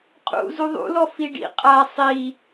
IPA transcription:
qʼ ṵ z u ðˤ ṵ l ɔ f i ɖ ḭ qʼ a sˤ i

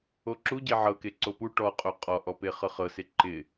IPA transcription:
o ǁ u ɟ e ʕ ɤ k e ǀ o p u ʈ ɔ qʼ o qʼ ɔ ʔ ɔ p e χ ɤ χ ɤ s e ǃ ɪ

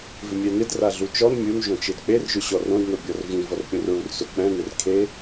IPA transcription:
v ɪ mʲ ɛ n ɪ d r a ɮ u t͡ʃ ɔ n mʲ u n ʒ õ t͡ʃ e d k͡p e r ʒ ʊ ɕ ɔ r õ d n o bʲ ɔ r v ĩ v ɔ r pʲ õ r ɹ u r s ʊ k͡p ɛ̃ n ɪ r kʰ e

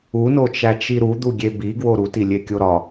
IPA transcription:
u n o t͡ʃ æ t͡ʃ i ɾ u d̪ u ɡʲ e b i ɡ w o ɾ u t i lʲ e kʲ o ɾ ɒ

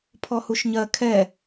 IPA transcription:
pʰ ɔ h u ʃ ɲ ɜ kʰ ɛ

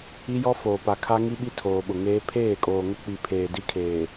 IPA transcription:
i˦ j ɔ˦ f oː˨ p a˨ kʰ a˦ ŋ i˦ ɓ i˦˨ tʰ oː˨ ɓ ʊ˨ ŋ eː˦ pʰ eː˦˨ kʼ oː˨ ŋ ʊ˦ k͡p i˨ pʰ eː˨ d i˦ kʰ eː˨

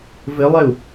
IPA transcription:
v ɘ lˠ ɛ u̯

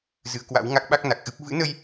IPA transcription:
z ɨ˨˦ ə̯ k w a̰˧˥ w ŋ a˦˥ k̚ ɓ a˦˥ k̚ n a˨˩ k̚ ʔ ɨ˦˥ p̚ v ɨ̰˧˥ n ə˧ j

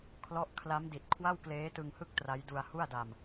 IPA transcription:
kʰ l ɔ˥˩ ʔ kʰ l a˦˥ m d i˨˩ t̚ kʰ w a˥˩ w k l eː˦˥ t ɯ˧ ŋ h ɯ˥˩ k̚ t r a˦˥ j d u˧ a̯ h u˥˩ a̯ d a˧ m

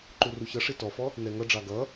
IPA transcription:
ǃ u r u ç ʌ ʂ i t ɔ f ɔ | n ɛ ŋ ʌ ɖ͡ʐ ɑ ɡ ʌ

